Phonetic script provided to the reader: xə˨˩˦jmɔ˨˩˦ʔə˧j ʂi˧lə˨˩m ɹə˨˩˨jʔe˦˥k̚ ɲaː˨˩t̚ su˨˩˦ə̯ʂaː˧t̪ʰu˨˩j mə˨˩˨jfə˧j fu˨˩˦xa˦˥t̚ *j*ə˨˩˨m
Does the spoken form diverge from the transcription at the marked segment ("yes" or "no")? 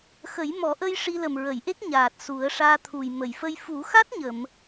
yes